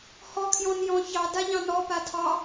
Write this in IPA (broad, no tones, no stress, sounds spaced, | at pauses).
h ɔ kʰ j ɔ̃ n j ɔ̃ ç ɑ d a ʎ ɑ̃ n ɔ p a tʰ ɑ